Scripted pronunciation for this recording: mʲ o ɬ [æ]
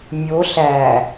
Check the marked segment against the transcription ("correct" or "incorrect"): correct